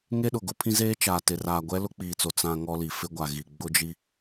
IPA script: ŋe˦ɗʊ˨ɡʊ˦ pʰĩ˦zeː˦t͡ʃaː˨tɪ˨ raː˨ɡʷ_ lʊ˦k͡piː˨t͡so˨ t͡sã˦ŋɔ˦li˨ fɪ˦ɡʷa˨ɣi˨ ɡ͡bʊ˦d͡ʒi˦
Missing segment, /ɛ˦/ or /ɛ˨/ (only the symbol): ɛ˦